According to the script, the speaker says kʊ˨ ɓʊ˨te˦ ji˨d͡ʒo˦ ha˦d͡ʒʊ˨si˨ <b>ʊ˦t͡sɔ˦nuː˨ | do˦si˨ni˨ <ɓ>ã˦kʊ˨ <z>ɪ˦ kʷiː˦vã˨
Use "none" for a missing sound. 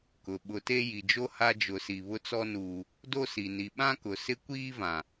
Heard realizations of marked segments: β, ɓ, s

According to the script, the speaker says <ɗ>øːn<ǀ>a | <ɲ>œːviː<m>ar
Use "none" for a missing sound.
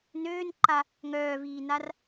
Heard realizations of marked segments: n, ǃ, ŋ, n

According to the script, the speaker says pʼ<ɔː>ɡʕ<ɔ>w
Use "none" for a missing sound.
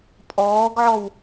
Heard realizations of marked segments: ɔː, ɔ

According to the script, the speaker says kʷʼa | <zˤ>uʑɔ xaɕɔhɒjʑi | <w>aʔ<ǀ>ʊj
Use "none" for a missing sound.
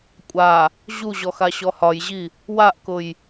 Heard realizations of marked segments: ʑ, w, k

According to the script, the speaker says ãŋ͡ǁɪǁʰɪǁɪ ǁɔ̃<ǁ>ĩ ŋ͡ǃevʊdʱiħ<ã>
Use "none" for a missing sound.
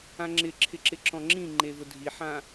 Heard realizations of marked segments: ŋ͡ǁ, ã

